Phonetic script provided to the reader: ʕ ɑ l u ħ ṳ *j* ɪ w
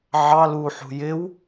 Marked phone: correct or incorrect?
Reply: correct